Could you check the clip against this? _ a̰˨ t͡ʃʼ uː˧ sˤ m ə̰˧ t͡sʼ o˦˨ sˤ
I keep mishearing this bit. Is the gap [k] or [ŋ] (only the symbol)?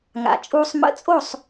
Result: ŋ